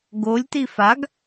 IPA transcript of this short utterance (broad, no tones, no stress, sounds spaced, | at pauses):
ɡ o lʲ t i f a ɡ